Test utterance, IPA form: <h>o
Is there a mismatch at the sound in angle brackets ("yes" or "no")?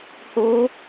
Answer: no